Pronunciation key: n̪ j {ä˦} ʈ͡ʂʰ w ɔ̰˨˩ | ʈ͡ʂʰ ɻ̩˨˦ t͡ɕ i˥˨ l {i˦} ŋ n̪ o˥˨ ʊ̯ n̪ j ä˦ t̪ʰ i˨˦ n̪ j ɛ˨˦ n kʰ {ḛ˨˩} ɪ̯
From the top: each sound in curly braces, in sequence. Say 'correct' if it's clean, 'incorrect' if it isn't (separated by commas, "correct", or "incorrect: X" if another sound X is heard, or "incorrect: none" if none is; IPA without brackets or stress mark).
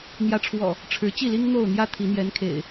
incorrect: ä˨˦, correct, correct